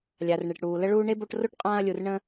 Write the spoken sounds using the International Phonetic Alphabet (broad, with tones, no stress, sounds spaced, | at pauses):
lʲ a˨ r ɳ e˨ ʈ ɽ uː˨ l ə˦ ɭ uː˦ ɳ e˥ b o˦ ʈ r o˥ ʈ qʼ ãː˦ ɐ̯ lʲ u˨ r ɳ ə̃˦